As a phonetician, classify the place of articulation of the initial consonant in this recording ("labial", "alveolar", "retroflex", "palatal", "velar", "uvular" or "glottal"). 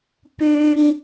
labial